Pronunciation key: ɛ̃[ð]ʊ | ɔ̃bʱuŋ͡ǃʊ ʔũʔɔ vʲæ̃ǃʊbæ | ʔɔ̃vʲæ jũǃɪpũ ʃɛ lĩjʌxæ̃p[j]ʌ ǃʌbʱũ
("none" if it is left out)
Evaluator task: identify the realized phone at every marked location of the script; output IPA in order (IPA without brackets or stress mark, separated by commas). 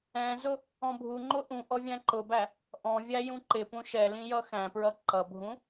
z, ɹ